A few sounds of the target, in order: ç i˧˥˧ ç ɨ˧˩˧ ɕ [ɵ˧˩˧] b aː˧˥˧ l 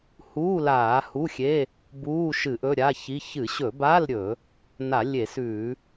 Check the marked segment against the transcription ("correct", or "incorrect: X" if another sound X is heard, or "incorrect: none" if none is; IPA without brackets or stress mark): correct